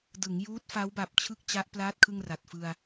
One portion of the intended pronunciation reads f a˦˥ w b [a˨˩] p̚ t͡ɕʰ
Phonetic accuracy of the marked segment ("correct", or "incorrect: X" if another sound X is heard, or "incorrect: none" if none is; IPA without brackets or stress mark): correct